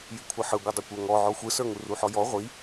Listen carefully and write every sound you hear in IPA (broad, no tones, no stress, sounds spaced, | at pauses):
j i kʷʰ ʌ ħ ɯ ɡʷ ɯ dˤ ʌ kʷ ə˞ ŋ ɔ ʕ ɔ xʷ ɯ s ə˞ ŋ u r u ħ ɔ j ɔ ʁʷ i